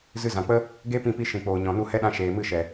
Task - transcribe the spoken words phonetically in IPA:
z ɨ˧ z ã˨ k͡p ə˦ | ɡ e˦ p ĩ˧ p i˧ ʃ ĩ˨ k͡p oː˨ ɲ ɔ̃˨ n u˦˨ h ɛ˦ ɗ ã˧ ʃ eː˨ m ɨ˦˨ ʃ ɛ˨

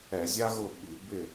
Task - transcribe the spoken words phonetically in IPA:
ɛ˧˩˧ zʲ a˥ ɣ ʊ˥˨ ɓ i˧˩˧ b ɪ˥˨

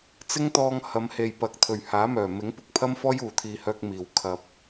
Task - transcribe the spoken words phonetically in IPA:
t͡s ɪ˥ ŋ t̪ ɔː˧ ŋ h ɐ˨˧ m h e˨ j p ɐ˨˥ k̚ t̪ʰ ɵ˨˩ ɥ h aː˨˥ m œː˨˩ m ɪ˨˥ ŋ p ʊ˨˥ k̚ pʰ ɐ˥ m f ɔː˥ j uː˨˩ t̪ʰ iː˨ h œː˧ k̚ m iː˨ w kʰ ɐ˧ p̚

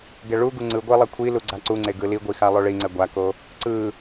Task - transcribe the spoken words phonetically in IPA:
ɡ ɛ ɭ u ɡ u ŋ͡ǀ ɯ ɡʷ e lˠ ɛ kʷʰ i l u ɡ͡ǀ a ǀ u ŋ͡ǀ e ɡ ɯ l i ɡʷ i x a lˠ o ɭ i ŋ͡ǀ ɛ ɡʷ a k o | ǀ ɯ

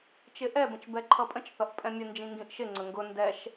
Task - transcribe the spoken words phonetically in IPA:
t͡ʃ ɪ ʔ ɛ b ə̃ t͡ʃ b ɛ ǃʰ ʌ pʼ ə̃ t͡ʃ θ ʌ ʔ pʼ ɛ̃ mʲ ə n d͡ʒ ĩ ŋ ɡ ĩ ʔ ʃ ɪ ŋ͡ǀ ə ŋ ɡ ʊ n d ɛ ʃ

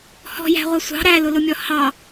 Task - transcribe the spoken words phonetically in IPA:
h ɔ̤ j æ̤ ʁʷ ʌ sʷ ɑ̤ ɾ æ l ʊ l ʊ mʲ ɔ h ɑ

